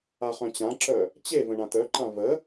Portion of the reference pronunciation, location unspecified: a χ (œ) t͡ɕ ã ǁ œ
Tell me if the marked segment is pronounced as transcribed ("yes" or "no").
no